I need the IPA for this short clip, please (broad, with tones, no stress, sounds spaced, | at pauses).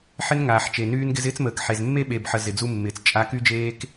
ħ ɪ˦ n ŋ aː˨ ħ t͡ʃ e˨ n yː˦ n ɡ ɪ˦ z ɪː˦ t͡s m əː˨ k ħ e˨ z mː e˦ ɓ e˨ b ħ ə˨ z ɪ˨ d͡z u˦ mː ɪː˨ t͡s t͡ʃʼ a˦ k y˦ d͡ʒ eː˦ k